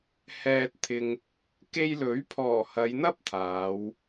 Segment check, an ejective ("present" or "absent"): absent